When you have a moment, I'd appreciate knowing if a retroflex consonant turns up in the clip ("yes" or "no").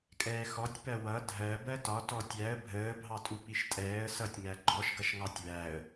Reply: no